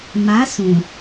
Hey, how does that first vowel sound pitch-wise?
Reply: rising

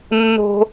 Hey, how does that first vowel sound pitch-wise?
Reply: high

